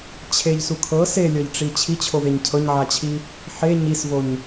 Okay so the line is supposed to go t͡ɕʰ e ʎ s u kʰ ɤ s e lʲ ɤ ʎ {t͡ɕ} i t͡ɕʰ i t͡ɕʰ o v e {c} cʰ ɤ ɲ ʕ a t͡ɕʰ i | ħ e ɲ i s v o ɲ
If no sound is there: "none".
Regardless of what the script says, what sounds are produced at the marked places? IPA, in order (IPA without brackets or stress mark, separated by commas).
ʈ͡ʂ, ɲ